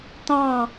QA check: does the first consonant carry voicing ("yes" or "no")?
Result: no